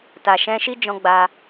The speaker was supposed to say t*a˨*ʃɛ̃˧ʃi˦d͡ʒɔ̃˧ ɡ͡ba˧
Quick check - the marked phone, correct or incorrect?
correct